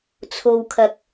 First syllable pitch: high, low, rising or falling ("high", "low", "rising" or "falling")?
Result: low